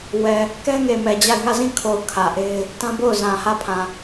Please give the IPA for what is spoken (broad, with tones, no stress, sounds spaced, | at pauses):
w ɛ˨ | k ɛ˦ ŋ e˨ m ɛ˨ d͡ʑ a˦˨ ɪ̯ ŋ ä˦˨ z ĩ˦˨ kʰ o˨ ʊ̯ kʰ ä˨ ʔ e˦ ɪ̯ | t ã˦ b o˦˨ ʊ̯ z ã˨ h ä˦˨ pʰ ã˨